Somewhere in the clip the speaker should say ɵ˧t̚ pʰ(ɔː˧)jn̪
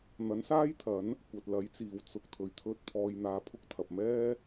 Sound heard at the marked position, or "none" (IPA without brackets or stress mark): ɔː˧